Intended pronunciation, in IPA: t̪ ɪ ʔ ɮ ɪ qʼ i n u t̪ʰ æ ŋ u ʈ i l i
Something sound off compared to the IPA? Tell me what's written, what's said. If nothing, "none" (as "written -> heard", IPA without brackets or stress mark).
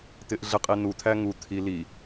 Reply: ʈ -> t̪ʰ